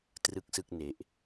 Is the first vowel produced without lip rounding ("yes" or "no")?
yes